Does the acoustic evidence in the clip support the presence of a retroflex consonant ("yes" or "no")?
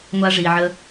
yes